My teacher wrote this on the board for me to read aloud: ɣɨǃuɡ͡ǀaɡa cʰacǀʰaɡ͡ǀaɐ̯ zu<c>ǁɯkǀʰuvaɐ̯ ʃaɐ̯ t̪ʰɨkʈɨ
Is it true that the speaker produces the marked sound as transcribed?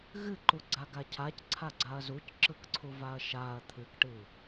yes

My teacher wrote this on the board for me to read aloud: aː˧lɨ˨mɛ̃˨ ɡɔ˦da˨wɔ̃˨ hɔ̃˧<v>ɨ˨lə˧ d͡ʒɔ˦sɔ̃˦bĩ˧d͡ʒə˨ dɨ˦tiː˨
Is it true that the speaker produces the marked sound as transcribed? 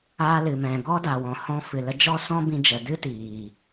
no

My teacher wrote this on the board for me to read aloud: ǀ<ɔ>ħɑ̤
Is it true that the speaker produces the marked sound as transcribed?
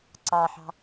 no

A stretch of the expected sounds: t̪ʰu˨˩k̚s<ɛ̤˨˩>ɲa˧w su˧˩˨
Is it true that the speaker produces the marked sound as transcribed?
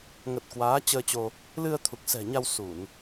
yes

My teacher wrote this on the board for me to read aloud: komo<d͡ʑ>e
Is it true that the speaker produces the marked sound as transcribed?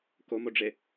no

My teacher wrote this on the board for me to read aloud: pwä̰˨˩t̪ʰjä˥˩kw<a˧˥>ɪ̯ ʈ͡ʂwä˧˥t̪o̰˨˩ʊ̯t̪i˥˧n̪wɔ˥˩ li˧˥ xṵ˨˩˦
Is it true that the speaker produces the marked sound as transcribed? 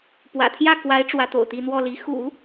yes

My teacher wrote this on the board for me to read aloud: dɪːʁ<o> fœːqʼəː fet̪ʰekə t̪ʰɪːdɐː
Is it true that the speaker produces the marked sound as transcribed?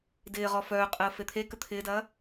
no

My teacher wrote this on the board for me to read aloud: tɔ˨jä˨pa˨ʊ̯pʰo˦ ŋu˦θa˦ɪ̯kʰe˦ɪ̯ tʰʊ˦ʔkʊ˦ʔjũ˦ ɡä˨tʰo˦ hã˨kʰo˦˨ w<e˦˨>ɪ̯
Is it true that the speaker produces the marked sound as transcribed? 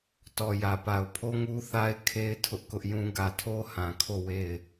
yes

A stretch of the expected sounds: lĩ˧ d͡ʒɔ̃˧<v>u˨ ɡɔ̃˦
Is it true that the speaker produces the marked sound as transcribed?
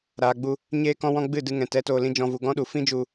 yes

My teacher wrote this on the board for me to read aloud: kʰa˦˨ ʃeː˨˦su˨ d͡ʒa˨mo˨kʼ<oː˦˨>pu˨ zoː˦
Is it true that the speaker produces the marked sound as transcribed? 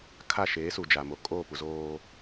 yes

